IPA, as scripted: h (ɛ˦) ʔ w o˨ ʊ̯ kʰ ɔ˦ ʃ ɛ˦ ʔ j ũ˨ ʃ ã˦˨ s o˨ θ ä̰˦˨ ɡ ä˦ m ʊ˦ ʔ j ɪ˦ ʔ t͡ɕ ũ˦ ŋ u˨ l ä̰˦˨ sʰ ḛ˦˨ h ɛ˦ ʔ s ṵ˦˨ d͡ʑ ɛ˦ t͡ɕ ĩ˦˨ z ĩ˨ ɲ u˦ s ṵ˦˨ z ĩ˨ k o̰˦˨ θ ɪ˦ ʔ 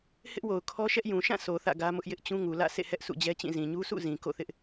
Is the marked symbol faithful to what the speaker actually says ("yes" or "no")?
no